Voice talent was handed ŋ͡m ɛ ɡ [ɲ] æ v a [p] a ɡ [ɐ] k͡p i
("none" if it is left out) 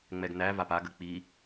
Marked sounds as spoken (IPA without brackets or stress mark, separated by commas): n, p, ə